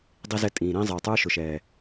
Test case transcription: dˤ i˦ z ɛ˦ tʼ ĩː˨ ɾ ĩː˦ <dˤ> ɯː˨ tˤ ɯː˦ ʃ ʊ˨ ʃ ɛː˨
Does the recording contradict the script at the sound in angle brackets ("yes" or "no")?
yes